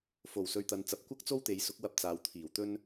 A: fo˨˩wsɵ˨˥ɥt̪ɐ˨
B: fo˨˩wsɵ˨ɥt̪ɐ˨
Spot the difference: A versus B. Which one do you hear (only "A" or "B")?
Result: B